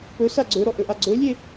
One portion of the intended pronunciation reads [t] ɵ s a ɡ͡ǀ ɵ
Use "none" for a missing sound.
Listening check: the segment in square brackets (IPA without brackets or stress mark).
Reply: p